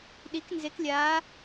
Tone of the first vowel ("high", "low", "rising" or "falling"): rising